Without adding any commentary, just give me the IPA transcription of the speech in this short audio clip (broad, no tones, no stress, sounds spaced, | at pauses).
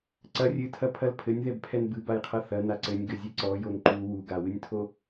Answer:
ǀ ɐ rʲ ɨ tʰ ɐ pʰ ɐ l pʰ ɘ nʲ ð ɛ b pʰ ɛ n b ɨ b a j qʰ ɐ θ ɐ n a ǀ ɘ nʲ ɡ ɘ zʲ ɨ ǀ ɔ j o n ǃ u w u ɡ a w ɨ nʲ tʰ o